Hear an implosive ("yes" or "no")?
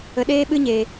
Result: yes